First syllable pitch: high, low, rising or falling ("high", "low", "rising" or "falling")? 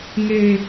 low